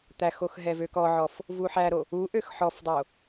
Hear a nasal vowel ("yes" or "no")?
no